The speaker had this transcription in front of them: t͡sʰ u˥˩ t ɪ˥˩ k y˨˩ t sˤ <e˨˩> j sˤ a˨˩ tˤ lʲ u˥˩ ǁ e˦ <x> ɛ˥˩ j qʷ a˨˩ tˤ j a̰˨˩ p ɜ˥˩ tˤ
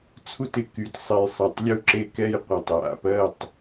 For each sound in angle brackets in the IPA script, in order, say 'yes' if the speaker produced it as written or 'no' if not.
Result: yes, no

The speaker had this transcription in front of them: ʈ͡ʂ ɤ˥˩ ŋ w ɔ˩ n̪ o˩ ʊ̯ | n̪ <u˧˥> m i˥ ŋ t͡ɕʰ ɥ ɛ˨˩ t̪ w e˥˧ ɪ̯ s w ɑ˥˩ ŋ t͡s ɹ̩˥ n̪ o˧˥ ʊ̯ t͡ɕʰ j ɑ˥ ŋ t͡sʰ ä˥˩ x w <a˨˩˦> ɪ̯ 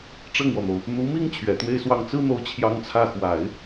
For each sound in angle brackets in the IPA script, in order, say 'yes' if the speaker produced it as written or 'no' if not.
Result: yes, yes

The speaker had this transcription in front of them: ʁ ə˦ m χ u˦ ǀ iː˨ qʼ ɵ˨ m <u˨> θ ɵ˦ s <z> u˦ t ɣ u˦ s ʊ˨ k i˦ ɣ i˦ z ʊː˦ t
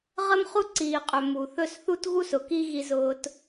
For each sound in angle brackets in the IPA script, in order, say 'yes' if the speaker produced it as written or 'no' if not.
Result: yes, no

